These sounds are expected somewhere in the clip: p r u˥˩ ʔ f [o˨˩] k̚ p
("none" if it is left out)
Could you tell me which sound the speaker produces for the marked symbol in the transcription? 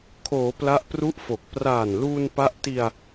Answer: o˨˩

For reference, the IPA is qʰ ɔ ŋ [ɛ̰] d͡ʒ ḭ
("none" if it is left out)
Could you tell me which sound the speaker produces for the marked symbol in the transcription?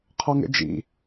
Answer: ɛ̰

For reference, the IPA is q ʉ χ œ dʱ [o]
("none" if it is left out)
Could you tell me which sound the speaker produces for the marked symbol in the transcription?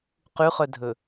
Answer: ɵ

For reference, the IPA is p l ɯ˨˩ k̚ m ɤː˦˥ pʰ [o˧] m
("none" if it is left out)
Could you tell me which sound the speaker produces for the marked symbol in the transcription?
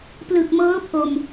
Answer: o˧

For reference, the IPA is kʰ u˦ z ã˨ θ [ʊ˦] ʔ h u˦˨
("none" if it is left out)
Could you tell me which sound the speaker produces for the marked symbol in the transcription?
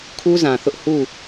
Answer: ʊ˦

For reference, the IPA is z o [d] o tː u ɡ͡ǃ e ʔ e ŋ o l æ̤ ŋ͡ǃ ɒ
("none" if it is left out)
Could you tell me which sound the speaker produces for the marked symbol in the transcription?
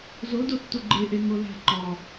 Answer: d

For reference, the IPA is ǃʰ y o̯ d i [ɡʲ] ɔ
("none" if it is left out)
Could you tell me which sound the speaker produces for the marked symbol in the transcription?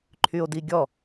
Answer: ɡʲ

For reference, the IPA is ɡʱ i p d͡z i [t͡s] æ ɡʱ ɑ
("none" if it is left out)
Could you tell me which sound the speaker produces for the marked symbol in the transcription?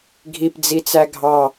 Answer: t͡s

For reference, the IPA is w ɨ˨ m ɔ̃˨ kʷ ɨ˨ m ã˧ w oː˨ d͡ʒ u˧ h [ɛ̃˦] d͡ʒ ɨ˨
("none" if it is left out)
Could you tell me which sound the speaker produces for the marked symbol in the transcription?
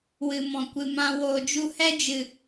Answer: ɛ˦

